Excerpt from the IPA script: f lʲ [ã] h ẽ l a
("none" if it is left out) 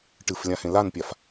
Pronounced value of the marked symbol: ã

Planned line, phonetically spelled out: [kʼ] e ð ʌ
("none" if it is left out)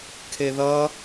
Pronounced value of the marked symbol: kʰ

